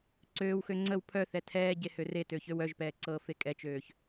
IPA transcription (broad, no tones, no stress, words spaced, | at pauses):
ǀøːwxø ŋ͡ǀəw pʰœθɛ tʰɛːɟe høretø çøwœʒpɛː ǀɤːfekʼɛt͡ʃøːç